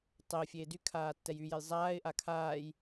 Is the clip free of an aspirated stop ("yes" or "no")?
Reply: no